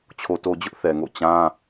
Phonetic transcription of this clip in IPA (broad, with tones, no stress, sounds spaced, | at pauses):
t͡ɕʰ o˨ t o˨ d͡ʑ ʊ˦ ʔ θ ɛ˨ ŋ o̰˦˨ t͡ɕ ã˦